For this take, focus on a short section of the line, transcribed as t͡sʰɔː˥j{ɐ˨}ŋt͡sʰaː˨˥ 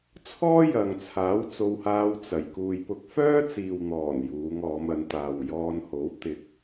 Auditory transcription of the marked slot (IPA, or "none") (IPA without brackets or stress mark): ɐ˨